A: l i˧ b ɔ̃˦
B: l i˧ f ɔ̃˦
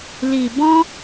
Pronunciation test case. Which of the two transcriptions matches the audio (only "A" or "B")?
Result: A